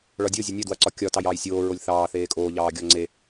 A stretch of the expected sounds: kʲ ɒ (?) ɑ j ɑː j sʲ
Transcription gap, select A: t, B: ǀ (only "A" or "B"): A